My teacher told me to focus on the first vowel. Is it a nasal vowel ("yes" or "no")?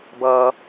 no